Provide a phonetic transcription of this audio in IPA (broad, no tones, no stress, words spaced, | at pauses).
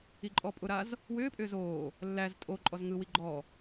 iǃʼɔpʼʊɾaz | wʏːpʼʏː zoː | lːæz tʼo ǃʼɔzŋɯwi ɡ͡ǃɔ